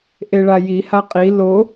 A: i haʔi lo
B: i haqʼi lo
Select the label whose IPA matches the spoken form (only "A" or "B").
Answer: B